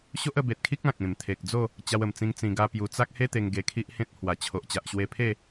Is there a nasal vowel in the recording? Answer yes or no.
yes